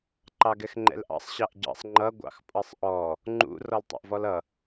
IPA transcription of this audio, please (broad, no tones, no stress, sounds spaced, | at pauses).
ǃ ɑ ɡ ɛ x ŋ͡ǃ ɛ̰ l ʔ ɑ̰ sˤ ɕ ɑ ʔ ɟ ɑ̰ sˤ ŋ͡ǃ ʌ ɡʷ ɑ̰ x pʼ ʌ sˤ ʔ ɔ | ŋ͡ǃ ṵ r ɔ l tˤ ɑ̰ ʔ v ɔ l ʌ